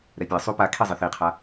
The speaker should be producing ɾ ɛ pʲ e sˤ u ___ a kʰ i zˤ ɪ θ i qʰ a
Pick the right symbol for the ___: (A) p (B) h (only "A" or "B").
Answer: A